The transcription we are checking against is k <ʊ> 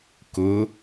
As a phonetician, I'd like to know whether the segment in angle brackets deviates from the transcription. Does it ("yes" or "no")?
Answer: no